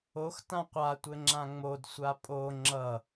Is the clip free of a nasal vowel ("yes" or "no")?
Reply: no